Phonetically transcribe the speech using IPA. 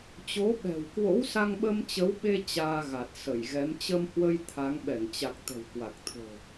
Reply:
t͡ɕo˨˦ɓɛ̤˨˩wkwo̰˧˥w sa˧ŋɓə˧mt͡ɕə˨˦wɓe˧ t͡ɕaː˧ɣa˨˩t̚sə˧˩jɣɛ˨˦m t͡ɕə˧mhwə˧j t̪ʰa˨˦ŋ ɓɛ˧˩ŋt͡ɕa˨˩k̚ t̪ə̤˨˩wkwa˨˩k̚t̪ʰo̤˨˩

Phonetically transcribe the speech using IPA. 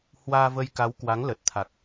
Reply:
hwaː˧və˧jka˨˦w kwa˨˦ŋlə˨˩t̚t̪ʰa˨˩k̚

